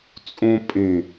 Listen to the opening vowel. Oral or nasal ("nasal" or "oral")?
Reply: nasal